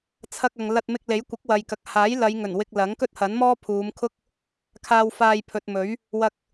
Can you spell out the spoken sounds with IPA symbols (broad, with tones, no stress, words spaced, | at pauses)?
t͡sʰɐ˧k̚ɐ˨ŋ lɐ˧t̚mɪ˧k̚le˨˥j kʷɪ˨˥k̚wɐ˨jkɐ˨k̚ haː˨˥jlɐ˨˧j ŋɵ˨˩n wɪ˧k̚ lɐ˨˥ŋkɵ˥t̚hɐ˨˥n mɔː˥pʰuː˨˧mkʰʊ˥k̚ | kʰaː˧wfaː˧j pʰɵ˨t̚mɵ˨˥ɥ | wɐ˧k̚